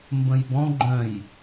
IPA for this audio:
m b ə̃ j b ɔ̃ ɡ͡ǃ œ̃ j

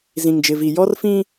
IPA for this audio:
z ĩ˨ ŋ d͡ʒ ɪ˨ v i˨ j ɔ˦ r f ĩ˦

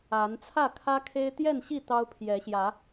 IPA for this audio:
a˨˦ n t͡sʰ ä˥˨ kʰ ä˦ kʰ e˦ ɪ̯ t̪ j ɛ˥˨ n ɕ i˥˨ t̪ ɑ˦ ʊ̯ pʰ j ɛ˨˦ ɕ j ä˨˦

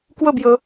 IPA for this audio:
k w ɵ b j ɵ

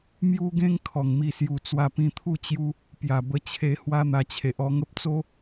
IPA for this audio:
m j u˦ ɡ ẽ˦ ŋ kʰ ɔ˨˩ ŋ m i˧ s j u˧ t͡s w a˧ p ĩ˧ t̪ʰ u˥˧ t͡ɕ j u˧ | p j a˨˩ b ə˧ t͡ɕʰ e˧ h w a˦ n̪ a˧ t͡ɕʰ e˨ ʔ ɔ˧ ŋ ə˦ p̚ t͡s o˦

